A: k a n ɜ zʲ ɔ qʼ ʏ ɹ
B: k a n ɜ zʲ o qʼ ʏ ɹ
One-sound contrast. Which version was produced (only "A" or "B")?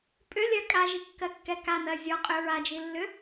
A